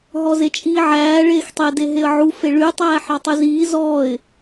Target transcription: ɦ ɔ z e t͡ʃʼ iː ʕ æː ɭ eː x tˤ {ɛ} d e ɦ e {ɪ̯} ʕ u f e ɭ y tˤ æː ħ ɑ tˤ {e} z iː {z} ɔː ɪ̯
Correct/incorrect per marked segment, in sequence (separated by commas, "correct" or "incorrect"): incorrect, incorrect, incorrect, correct